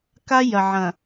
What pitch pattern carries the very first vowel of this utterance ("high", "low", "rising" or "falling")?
high